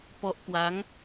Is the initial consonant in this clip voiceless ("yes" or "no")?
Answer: yes